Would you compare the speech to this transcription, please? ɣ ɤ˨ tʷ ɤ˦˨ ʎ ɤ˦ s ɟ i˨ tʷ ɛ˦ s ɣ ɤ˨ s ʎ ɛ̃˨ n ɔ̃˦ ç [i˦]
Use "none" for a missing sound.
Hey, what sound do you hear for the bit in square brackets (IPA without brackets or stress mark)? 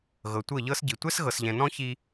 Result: i˦